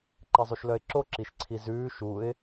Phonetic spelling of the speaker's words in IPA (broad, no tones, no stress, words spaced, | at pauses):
ǃezˤuʃlœɪ̯ǁo ǁiʃǀʰizʉː ʃuɪ̯